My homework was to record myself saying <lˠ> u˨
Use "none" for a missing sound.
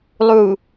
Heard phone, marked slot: lˠ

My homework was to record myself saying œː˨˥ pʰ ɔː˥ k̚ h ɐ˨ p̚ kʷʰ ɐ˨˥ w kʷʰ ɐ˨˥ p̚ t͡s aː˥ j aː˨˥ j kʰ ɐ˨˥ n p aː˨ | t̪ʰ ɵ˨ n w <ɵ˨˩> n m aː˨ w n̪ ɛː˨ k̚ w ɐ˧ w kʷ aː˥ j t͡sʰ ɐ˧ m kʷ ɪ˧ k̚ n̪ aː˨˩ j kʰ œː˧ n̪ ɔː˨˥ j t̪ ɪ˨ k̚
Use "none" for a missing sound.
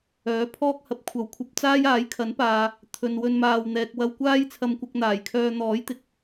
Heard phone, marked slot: ɵ˧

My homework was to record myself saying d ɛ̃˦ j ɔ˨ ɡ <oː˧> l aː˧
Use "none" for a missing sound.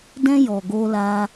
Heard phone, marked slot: oː˧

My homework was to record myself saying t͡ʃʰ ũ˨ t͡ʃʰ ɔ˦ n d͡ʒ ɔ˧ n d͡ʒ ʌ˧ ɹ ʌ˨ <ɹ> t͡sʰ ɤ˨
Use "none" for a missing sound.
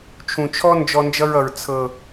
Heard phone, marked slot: ɹ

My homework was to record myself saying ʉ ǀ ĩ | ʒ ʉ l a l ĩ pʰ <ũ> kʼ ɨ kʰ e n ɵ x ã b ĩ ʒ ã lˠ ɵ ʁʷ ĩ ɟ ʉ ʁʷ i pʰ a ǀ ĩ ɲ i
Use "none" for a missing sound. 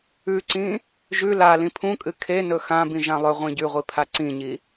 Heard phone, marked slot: ũ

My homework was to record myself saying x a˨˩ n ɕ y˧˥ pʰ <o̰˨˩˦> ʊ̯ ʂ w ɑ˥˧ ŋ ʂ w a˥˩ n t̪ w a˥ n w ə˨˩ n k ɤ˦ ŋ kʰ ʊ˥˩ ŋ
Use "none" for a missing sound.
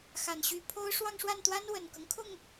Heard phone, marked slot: o˥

